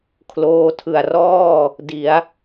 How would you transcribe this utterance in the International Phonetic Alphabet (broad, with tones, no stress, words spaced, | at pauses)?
kʰloː˧tʰɯ˨˩a̯ rɔː˥˩ | di˩˦a̯